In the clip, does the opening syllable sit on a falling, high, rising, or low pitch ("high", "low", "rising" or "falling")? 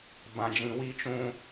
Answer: high